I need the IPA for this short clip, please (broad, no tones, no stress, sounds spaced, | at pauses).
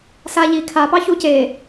s a ʎ i kʰ a p ɑ ç u c e